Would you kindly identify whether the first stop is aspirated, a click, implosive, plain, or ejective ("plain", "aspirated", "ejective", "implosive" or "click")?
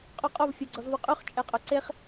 ejective